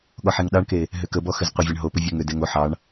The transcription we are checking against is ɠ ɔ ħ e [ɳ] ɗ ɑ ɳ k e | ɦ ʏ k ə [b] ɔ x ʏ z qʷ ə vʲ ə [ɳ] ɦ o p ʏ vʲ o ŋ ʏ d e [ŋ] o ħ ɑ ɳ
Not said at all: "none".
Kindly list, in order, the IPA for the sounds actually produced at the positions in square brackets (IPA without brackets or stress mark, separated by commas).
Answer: ŋ, b, ɳ, ŋ